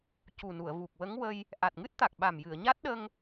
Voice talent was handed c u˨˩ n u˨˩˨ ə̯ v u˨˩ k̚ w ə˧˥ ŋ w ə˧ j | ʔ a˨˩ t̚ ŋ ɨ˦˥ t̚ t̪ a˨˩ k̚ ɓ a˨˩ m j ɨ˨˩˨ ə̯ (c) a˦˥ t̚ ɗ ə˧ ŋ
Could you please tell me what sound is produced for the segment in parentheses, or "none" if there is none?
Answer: ɲ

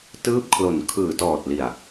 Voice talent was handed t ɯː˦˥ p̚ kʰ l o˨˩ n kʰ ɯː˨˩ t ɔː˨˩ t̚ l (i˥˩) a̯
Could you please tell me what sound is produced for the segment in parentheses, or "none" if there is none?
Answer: i˨˩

